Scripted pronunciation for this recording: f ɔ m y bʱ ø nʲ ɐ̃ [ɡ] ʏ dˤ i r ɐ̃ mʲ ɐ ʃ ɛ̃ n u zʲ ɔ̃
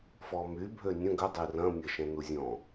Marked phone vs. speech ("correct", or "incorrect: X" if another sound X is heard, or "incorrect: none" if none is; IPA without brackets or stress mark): correct